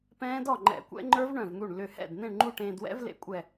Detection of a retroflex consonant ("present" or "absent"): present